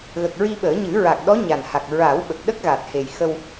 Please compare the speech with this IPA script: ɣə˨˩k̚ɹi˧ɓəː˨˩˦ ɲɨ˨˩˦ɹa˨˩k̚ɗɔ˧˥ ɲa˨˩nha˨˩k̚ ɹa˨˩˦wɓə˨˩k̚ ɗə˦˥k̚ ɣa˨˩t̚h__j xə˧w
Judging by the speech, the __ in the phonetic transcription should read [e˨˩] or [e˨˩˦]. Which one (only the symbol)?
e˨˩